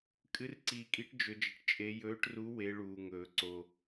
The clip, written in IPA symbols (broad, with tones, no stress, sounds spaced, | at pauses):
kʼ ɨ˧˥ r ǀ iː˧ kʼ i˧˥ ʈ d͡ʒ ɵ˧˥ d͡ʒ ɐ˧ ʈ t͡ʃʼ e˧˥ j ɵː˧˥ ʈ r u˧˥ w e˧˥ ɭ uː˧ ŋ ɵː˧ ǀ o˧